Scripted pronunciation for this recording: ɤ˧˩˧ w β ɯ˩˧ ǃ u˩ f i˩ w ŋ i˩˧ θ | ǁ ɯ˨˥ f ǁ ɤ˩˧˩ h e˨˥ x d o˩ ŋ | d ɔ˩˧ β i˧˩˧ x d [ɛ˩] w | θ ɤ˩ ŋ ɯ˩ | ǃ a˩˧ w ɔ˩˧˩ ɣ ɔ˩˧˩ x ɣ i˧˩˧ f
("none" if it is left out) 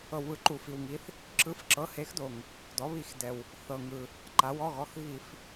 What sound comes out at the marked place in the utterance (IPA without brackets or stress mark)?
ɛ˩